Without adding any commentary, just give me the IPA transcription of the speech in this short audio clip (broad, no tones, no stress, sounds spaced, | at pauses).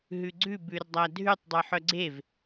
ɦ ʉ ɡ͡ǀ ʉ b ʉ r dˤ æ dʱ ʉ tˤ dˤ ʉ ħ œ ɡ͡ǀ e v